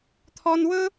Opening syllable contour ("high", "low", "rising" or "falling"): high